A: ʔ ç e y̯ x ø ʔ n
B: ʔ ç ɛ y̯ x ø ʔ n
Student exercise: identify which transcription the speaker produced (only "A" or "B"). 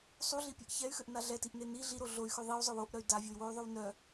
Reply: B